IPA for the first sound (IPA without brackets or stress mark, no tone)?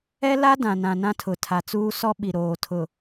ɛ